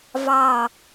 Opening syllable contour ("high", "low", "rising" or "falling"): falling